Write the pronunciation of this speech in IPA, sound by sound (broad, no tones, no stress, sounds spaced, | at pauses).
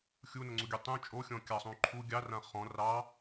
xʲ u n ʌ ŋ͡ǀ u ɡʲ ø tˤ ũ t͡ʃʼ o xʲ ɔ̃ kʲ ɑ sˤ ũ ǃʰ u ɡʲ ɑ r ã χ ɔ̃ r ɑ